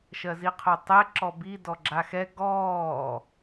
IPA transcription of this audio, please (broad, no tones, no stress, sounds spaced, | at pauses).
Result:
ʃ ɜ z i qʰ o tˤ ɛ ǁ ɔ b i d ɔ ɡ͡ǁ a x ɛ ɡ ɔː